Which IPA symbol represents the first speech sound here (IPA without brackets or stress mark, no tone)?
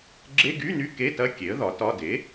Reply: ɡ͡ǁ